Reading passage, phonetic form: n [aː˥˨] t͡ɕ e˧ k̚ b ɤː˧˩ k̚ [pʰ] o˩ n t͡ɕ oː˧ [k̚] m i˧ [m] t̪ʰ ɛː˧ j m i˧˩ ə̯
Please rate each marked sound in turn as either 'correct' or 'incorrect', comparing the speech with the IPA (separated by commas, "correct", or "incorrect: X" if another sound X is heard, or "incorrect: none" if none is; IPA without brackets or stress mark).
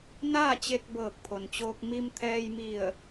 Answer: correct, correct, correct, correct